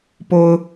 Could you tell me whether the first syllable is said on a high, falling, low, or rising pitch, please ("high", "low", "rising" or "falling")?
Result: high